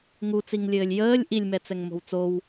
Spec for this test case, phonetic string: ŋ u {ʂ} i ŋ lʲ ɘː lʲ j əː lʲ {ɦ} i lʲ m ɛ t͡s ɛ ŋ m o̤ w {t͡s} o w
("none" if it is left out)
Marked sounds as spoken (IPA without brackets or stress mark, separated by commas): t͡s, ʔ, t͡s